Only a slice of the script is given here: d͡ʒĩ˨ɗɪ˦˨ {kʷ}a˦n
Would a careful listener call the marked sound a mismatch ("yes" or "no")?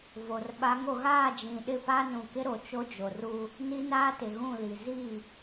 yes